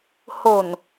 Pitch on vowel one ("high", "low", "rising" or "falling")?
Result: low